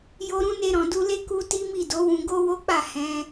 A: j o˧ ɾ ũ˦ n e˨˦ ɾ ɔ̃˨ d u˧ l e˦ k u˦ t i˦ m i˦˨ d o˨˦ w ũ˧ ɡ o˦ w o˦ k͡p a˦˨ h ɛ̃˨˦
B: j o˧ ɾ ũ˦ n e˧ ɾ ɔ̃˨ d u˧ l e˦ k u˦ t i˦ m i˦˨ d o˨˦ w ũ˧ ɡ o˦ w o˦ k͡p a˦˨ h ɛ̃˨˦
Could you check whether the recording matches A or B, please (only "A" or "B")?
B